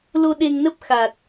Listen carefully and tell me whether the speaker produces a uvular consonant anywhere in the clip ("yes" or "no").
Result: no